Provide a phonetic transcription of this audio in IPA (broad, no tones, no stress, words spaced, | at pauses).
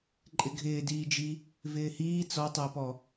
ǃʼɪɡʱɪːdiːd͡ʒi | vɪːhiː t͡sɔtˤɪːpɔ